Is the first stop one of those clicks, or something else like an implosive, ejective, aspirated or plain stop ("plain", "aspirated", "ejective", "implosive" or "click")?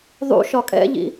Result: ejective